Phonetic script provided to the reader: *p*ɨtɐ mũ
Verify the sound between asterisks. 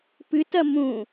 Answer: correct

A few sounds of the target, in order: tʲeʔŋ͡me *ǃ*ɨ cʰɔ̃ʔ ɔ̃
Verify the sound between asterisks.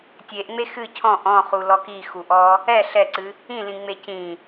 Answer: incorrect: x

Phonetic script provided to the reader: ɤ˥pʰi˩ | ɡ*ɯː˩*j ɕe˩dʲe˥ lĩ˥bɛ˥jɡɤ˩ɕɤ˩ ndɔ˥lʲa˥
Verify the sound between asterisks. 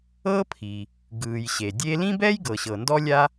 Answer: correct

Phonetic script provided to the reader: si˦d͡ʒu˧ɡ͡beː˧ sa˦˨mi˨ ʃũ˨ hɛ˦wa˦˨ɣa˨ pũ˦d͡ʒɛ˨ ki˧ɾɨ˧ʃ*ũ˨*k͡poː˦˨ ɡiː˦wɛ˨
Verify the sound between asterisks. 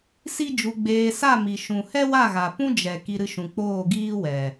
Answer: correct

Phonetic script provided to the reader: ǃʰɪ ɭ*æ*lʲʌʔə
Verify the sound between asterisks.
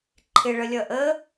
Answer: incorrect: ə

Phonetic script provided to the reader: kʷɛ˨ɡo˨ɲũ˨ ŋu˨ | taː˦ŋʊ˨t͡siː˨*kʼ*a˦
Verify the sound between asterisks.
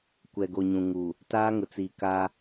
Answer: incorrect: k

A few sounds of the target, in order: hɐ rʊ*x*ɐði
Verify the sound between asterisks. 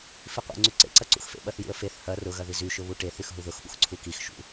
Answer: incorrect: ɣ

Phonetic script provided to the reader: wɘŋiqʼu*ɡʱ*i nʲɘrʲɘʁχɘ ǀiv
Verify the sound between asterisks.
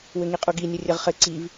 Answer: incorrect: ɡ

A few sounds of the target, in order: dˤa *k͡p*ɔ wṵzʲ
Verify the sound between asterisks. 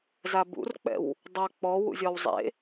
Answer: correct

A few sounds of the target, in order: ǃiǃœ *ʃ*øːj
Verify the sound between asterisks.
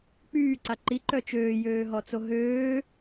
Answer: incorrect: t͡ʃ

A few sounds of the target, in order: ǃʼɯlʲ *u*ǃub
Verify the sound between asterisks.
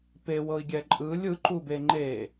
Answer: incorrect: ɯ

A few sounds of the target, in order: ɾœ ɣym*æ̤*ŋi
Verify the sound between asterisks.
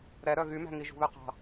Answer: correct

